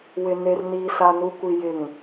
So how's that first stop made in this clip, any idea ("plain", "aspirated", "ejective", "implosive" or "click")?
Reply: plain